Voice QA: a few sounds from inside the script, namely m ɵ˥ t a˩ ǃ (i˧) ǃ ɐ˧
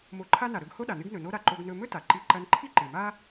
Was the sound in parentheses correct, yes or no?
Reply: yes